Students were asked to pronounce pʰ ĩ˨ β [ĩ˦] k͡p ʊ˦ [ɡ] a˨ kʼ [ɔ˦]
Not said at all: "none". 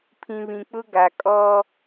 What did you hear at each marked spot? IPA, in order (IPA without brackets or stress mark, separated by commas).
ĩ˨, ɡ, ɔ˦